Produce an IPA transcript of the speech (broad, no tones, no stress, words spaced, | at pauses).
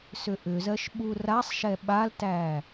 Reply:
sʏʔʏzɜʃ ɓurasˤʃɛ ɓaltæ